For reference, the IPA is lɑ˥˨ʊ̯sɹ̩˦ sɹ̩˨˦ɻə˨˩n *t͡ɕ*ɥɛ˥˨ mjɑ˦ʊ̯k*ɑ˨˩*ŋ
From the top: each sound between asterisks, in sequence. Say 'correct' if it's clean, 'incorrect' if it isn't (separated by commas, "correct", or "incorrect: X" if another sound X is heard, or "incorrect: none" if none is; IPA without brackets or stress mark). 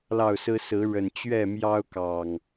correct, correct